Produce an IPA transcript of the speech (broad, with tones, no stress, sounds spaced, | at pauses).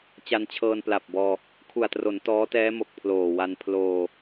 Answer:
t͡ɕ a˧ n t͡ɕʰ ɤː˧ n p l a˨˩ p̚ b ɔː˧ | kʰ u˨˩ a̯ t r o˩˦ n t ɔː˦˥ t ɛː˦˥ m o˨˩ k̚ pʰ l oː˨˩ w a˧ n pʰ l oː˧